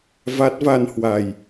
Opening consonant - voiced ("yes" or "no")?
yes